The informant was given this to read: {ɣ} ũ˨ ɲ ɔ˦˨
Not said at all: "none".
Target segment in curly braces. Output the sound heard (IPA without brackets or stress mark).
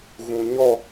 ɣ